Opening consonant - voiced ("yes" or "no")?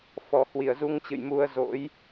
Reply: no